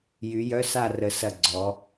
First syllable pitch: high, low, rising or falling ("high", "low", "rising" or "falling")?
rising